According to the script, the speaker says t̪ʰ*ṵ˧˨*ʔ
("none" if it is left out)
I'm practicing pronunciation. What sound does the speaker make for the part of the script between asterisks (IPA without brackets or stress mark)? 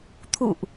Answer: ṵ˧˨